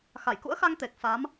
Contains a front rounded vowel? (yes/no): no